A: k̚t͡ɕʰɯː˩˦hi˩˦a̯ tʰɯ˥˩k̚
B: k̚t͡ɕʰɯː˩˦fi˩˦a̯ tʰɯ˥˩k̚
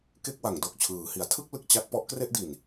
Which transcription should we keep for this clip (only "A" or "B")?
A